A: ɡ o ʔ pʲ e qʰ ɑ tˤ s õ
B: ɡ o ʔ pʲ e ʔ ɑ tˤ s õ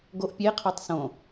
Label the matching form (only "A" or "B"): A